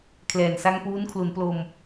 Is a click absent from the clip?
yes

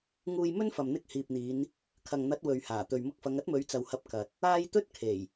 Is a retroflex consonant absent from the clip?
yes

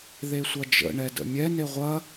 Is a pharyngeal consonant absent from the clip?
yes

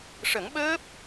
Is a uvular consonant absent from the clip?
yes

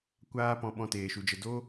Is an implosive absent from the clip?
no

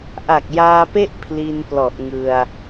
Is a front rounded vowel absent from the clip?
yes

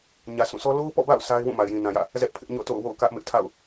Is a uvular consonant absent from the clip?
yes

